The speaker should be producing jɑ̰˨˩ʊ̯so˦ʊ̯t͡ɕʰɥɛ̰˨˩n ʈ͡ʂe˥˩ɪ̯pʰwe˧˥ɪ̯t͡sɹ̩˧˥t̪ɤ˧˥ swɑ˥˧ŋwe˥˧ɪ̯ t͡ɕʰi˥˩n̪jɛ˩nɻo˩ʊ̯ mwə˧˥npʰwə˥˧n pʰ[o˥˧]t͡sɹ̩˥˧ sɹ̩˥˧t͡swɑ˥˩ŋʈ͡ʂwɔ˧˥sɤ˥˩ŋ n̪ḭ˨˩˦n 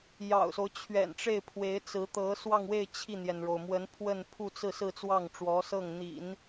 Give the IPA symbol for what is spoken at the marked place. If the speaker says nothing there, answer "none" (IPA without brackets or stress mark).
u˥˧